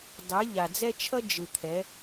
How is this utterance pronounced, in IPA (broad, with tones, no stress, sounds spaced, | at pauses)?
dˤ e˨˦ ʎ a˨ d͡z ɛ˦ t͡ʃʰ ʌ˦ d͡ʒ ɯ˨ t̪ʰ ɛ˨˦